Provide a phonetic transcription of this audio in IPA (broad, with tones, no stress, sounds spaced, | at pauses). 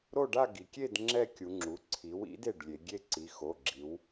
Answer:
ɾ o˥˨ ɖ a˥˨ ɡ i˩˧ kʲ e˥˨ d ŋ͡ǁ ɛ˥˨ kʲ u˩˧ ŋ͡ǁ u˩˥ ǀʰ i˩˥ w ḭ˩˥ d e˩˧˩ ɖ lʲ e˩˧ ɡʲ e˥˨ ǀ i˩˧˩ x o˩˧˩ ɡ͡ǁ i˩˧ w